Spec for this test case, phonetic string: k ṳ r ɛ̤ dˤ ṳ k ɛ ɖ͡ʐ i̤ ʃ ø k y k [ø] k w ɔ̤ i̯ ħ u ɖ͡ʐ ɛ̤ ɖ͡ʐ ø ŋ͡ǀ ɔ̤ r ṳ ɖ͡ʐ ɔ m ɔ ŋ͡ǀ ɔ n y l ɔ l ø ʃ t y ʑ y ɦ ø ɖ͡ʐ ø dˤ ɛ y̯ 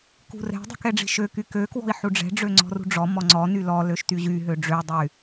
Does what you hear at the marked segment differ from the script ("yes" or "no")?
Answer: no